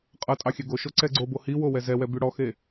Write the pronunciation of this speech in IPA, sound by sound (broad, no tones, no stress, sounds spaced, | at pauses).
qʼ ʌ tʼ ɑ xʲ ɛ ɡ o ʃ o ǀ ɛ ɡ͡ǀ o b o h i w o w ɛ z ɛ w ɛ b y ɽ ɔ x e